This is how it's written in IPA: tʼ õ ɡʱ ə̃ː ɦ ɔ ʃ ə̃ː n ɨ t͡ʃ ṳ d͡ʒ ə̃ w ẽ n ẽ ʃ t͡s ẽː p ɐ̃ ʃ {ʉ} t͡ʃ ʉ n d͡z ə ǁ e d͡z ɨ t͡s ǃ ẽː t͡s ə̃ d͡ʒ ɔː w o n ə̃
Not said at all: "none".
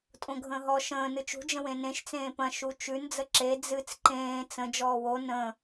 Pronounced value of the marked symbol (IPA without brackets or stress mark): u